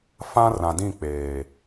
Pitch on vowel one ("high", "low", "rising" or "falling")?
high